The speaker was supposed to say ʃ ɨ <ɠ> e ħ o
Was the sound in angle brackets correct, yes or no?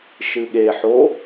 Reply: yes